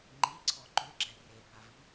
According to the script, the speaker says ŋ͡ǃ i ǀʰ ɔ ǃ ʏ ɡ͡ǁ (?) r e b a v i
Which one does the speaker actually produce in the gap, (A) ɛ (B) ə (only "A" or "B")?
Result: A